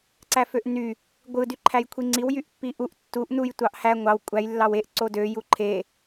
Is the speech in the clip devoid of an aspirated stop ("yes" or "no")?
no